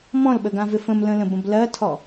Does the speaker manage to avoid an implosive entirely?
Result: no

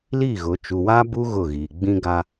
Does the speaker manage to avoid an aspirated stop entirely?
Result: yes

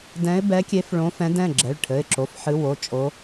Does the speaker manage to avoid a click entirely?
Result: no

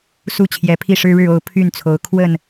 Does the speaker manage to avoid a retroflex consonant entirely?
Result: no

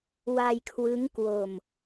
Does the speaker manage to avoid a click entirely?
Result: yes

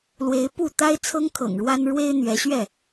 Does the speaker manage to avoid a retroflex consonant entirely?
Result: no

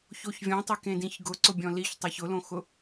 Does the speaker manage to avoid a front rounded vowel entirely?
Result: yes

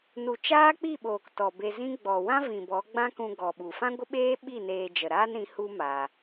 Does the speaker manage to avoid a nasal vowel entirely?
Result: no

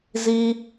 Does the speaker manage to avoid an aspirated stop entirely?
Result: yes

